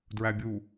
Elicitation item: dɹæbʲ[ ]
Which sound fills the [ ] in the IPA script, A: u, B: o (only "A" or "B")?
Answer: A